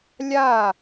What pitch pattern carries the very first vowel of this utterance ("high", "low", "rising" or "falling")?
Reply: falling